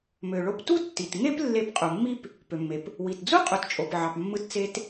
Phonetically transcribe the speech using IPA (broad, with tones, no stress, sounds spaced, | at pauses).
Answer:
m ø˩ ɭ o˧ p t u˥ tː i˩ t ŋ e˥ p lː e˧ p qʼ u˩ mː i˥ p | p ø˩ mː e˩ p | w i˩ t d͡z u˥ qʼ u˩ t t͡ʃʼ o˩ p ʕ ɑ˩ p mː ɯ˧ t t͡s e˧ t